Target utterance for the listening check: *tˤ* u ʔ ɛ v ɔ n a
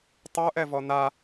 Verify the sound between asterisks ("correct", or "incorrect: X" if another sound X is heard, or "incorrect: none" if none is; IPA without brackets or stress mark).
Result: correct